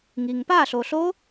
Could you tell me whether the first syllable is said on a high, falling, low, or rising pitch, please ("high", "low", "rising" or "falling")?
low